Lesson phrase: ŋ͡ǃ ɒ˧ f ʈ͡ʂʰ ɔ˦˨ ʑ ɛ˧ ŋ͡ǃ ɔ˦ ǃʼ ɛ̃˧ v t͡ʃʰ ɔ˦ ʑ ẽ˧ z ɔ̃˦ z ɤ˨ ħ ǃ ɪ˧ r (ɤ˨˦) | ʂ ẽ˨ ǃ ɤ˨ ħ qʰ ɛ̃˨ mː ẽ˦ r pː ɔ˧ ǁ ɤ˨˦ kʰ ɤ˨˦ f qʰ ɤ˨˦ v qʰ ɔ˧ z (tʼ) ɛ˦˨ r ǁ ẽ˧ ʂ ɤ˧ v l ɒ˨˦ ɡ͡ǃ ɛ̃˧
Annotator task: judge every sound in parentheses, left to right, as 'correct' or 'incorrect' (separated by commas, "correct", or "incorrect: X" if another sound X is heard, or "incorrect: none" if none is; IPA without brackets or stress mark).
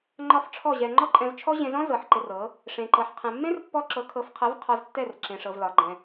correct, incorrect: tː